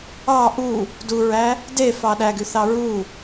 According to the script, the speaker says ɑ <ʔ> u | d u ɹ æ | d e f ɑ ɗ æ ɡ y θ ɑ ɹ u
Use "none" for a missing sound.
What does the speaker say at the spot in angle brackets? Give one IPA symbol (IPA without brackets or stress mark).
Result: ʔ